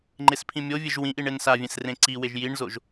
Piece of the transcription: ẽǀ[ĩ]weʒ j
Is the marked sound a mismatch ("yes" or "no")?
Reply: yes